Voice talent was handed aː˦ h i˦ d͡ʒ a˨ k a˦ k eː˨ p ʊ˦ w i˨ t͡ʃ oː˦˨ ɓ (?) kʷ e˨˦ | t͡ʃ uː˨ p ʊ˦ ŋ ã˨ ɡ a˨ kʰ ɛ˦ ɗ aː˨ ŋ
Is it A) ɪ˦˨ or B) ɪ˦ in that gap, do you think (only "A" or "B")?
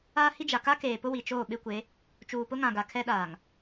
B